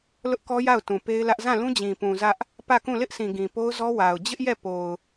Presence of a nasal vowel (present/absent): present